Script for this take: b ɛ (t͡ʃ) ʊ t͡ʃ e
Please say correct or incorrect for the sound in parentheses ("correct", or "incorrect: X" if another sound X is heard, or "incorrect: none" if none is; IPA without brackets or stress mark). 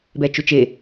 correct